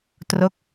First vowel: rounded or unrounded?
rounded